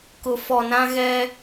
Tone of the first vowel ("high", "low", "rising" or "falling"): low